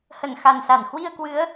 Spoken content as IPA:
hə˧˩nxa˨˩nsa˧˩n hwi˧ə̯kwɨ˨˦ə̯

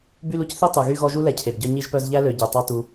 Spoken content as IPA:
by˦lu˨cθi˥tˤu˩ ɣy˥ ɣɔ˦ʒu˥ lɛ˨cʰe˩bɟœ˦ ɲi˦ʒpœ˦zʎæ˥lø˨ ɟø˩tˤɑ˦tu˨

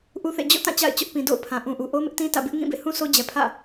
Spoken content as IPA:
ʔu˦θḛ˦˨ d͡ʑo̰˦˨tã˦˨ t͡ɕa̰˦˨ɪ̯t͡ɕʊ˦ʔ pĩ˨do̰˦˨ʊ̯pʰã˨ ʔũ˨ʔu˨ ʔo˦mɪ˦ʔtĩ˦ tä̰˦˨ bɪ˦ʔ ŋĩ˦˨bḛ˦˨hũ˦ so˦d͡ʑɛ˨pʰä̰˦˨

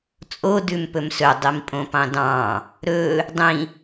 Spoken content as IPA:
t͡sʼo dʉmpɵmsɵ dˤimpʼõpɑ̃dɑ̃ | ɾɵ | dˤĩ

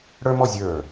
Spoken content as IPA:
ɽə˞˥mɔ˥˧ zʲə˞˧˩

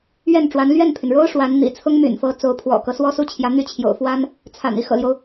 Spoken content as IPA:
ɥɛ˥˩nʈ͡ʂwa˧˥n lɥɛ˥˩npʰy˩nɻo˥ʊ̯ ʂwa˧˥nn̪ḭ˨˩ t͡sʰʊ˥ŋmy̰˨˩nfɤ˧˥ t͡so˧˥ʊ̯pʰwɔ̰˨˩kɤ˦ swɔ˥su˥˩t͡ɕʰjä˧˥ n̪y˥˩t͡ɕʰjo̰˨˩ʊ̯fwa˥n | t͡sʰa̰˨˩n i˧˥xɤ̰˨˩ljo˦ʊ̯

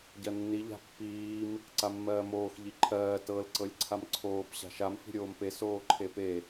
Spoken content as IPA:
ɟɜnːi ʎa̤pːiːm | ǀamːɜːmoːx ʎiǃʰɜː tɤl ǀɤlʲǀʰamǀʰoːp ɕa̤ʃam fi̤ɾʲoːmpe soːǃʰepe

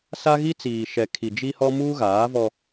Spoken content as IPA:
sa˦ɣi˦ t͡siː˨ʃɛ˨kʰi˨ d͡ʒi˦hɔ˦ muː˦ɣaː˨˦vɔ˦

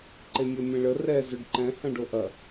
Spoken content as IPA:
ǃemʲɜmʲẽɭə rɛ zʏɖǃɛ̃ hɐ̃ɖoʔɐ

